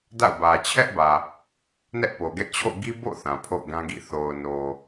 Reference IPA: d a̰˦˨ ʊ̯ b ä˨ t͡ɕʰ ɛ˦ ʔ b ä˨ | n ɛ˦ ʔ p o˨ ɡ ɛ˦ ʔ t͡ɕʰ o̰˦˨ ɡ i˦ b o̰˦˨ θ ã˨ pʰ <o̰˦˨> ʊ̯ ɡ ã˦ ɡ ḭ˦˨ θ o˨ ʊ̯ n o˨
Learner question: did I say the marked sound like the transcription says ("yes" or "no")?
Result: yes